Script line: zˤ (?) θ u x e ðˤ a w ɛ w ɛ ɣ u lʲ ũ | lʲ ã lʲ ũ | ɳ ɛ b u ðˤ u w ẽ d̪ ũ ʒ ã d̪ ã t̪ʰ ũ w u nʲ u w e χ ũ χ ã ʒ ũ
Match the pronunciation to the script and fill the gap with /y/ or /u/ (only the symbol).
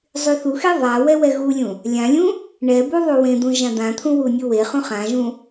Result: y